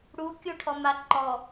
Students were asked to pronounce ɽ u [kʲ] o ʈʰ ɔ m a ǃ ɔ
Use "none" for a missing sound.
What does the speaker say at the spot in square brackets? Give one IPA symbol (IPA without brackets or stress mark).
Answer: kʲ